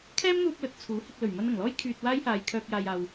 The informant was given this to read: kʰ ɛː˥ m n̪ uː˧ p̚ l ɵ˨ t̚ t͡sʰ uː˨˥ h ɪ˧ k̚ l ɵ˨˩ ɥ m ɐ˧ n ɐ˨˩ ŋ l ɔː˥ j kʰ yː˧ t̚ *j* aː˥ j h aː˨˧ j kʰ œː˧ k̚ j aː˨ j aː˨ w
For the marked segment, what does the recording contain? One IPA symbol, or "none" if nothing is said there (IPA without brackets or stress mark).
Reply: w